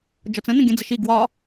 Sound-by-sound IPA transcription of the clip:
d͡ʒ ɒ t͡s ə̃ n ə̃ ɡʲ ə̃ d͡z ə ʃ i ɡ w ɒ

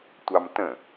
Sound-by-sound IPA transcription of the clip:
tʷ ɑ m t ə̃

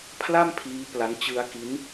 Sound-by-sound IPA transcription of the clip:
pʰ l a˥˩ m pʰ iː˦˥ p l a˦˥ n t͡ɕ ɯ˦˥ a̯ k i˦˥ n

